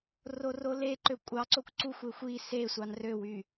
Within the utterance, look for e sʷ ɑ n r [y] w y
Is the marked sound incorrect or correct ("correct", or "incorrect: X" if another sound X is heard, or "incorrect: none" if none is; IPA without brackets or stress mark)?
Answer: incorrect: ø